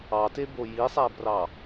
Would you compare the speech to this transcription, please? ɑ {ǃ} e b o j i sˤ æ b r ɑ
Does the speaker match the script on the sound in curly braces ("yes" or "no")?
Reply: no